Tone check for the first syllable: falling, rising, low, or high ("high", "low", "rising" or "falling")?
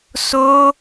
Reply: high